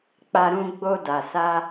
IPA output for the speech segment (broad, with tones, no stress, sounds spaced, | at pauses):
k͡p a˧ ɾ ũ˧ ɡ͡b o˧ d a˨ s a˧